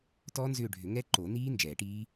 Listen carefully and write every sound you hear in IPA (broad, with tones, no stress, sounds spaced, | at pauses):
t ɔː˦˥ n z ʏː˦˨ ɖʱ ʏ˨˩˦ ŋ ɛ˦˥ ǃ o˨˩˦ n iː˦˥ n d͡ʒ ɛː˨˩˦ ʈ iː˦˥